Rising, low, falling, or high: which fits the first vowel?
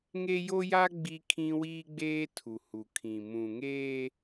high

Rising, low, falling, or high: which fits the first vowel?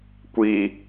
low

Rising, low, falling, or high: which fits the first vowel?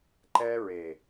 high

